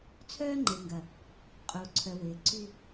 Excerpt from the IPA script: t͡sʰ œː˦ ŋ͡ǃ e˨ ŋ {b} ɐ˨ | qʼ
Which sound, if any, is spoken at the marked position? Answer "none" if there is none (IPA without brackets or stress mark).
ɡ